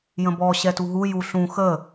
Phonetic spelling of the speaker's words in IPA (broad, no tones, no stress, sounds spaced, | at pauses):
j ə̃ b ɔ ɕ ɛ t u ɦ u j u ɬ ũ x ə